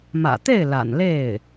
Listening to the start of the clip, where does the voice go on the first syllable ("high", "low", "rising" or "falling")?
low